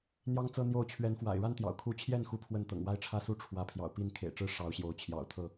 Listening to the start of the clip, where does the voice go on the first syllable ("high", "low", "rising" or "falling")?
high